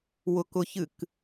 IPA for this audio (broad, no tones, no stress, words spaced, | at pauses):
wʊkʊçɨk